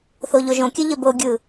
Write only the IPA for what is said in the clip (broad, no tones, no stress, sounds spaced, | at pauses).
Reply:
θ o ʎ o ʒ õ kʲ ɘ ʎ ɘ b o ɡʲ ɯ